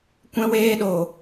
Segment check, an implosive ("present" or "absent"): present